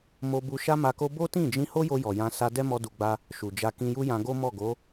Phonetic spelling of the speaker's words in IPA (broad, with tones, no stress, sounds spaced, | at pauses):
m o˧ b u˧ ʃ a˦ m a˧ k o˦ b o˦ t ĩ˦˨ d͡ʒ ĩ˧ h o˦ j o˧ j ɔ˨ j ã˧ s a˧ d ɛ˦ m ɔ˧ d u˨ ɡ͡b a˧ | ʃ u˨ d͡ʒ a˧ k ĩ˧ j u˦ j ã˧ ɡ o˦ m ɔ˦˨ ɡ o˨˦